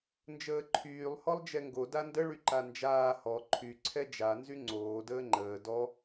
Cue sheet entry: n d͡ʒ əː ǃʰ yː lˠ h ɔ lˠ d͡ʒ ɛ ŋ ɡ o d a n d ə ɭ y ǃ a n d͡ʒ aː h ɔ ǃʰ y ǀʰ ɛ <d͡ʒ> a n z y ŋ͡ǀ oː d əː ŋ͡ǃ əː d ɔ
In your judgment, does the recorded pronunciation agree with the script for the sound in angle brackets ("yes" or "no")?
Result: yes